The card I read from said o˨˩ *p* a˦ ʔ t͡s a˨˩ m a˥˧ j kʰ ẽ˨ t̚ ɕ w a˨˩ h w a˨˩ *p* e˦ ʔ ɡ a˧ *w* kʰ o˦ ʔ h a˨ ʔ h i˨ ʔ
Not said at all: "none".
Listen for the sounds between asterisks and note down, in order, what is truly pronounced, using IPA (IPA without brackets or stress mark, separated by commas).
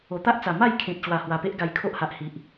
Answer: t̪, p, j